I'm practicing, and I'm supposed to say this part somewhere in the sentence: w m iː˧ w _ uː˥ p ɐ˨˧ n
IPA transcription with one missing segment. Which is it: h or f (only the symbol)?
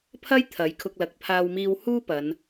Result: h